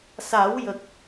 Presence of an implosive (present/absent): absent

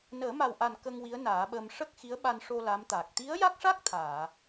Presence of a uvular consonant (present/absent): absent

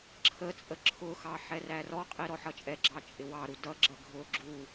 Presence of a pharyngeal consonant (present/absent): present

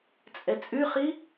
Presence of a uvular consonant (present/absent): present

